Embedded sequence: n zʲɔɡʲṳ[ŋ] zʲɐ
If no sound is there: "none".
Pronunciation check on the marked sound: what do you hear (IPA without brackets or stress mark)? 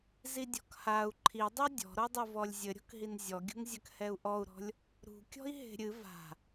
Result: ŋ